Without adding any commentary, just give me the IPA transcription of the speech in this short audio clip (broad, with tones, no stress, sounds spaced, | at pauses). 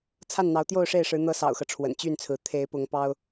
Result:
t͡sʰ a˥˩ n n̪ ɑ˧˥ ʊ̯ t̪ j o˥˧ ʊ̯ ʂ e˥˩ ɪ̯ ʂ ɻ̩˧˥ n̪ ɤ˧˥ s ɑ̰˨˩ ʊ̯ x ɤ˦ ʈ͡ʂʰ w ə̰˨˩ n t͡ɕ y˥˩ n t͡sʰ ɹ̩˧˥ t̪ʰ e˧˥ ɪ̯ p ʊ˧˥ ŋ p ɑ˥ ʊ̯